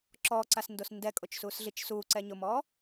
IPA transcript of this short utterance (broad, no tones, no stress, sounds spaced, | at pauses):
ǁ ɔ ǀ a s n d o s n d ɛ kʼ o t͡ʃ s uː s ɮ i t͡ʃ s uː ǀ ɛ ɲ ʊ m ɔː